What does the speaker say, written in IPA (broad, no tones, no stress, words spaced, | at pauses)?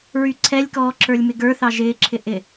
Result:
ɹyǀʰɛlʲkɔː ǁə˞lʲmɪɡə˞θɑ ʒɪːǁʰɪ ʔɪ